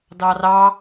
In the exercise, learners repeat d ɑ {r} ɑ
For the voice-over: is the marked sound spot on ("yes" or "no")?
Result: yes